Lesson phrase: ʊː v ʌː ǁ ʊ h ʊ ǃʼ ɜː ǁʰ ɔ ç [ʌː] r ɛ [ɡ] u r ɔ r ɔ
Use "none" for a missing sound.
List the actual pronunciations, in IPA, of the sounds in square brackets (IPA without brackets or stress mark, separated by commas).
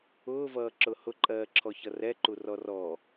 ʌ, ǃ